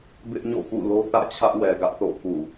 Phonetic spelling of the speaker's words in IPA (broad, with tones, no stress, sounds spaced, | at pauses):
b ɪ˦ ʔ ɲ o̰˦˨ k ṵ˦˨ l o˦ θ ä̰˦˨ t͡ɕʰ ä˦ ʔ w ɛ˨ ɡ ä˦ ʔ θ o̰˦˨ k ṵ˦˨